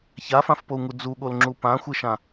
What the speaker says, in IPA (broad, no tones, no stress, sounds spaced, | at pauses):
ç a f ã f p o u̯ ŋ u d͡z u ɠ o l ŋ͡ǁ u p ã xʷ ɨ ʃ ã